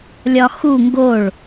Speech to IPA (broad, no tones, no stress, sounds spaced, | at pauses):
lʲ ɒ x u ŋ ɡ o ɭ